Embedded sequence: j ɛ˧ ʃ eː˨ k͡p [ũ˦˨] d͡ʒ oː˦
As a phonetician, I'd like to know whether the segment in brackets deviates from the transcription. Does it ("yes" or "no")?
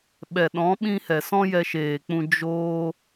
yes